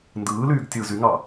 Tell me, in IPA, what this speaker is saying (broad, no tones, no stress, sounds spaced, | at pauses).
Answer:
n d ɯː l yː ɡ tʲ ɯ z y ŋ ɑ